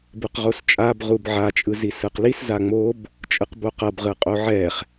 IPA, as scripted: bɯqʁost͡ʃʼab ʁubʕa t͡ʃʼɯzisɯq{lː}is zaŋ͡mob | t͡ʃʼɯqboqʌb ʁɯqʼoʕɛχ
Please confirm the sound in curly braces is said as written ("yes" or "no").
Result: no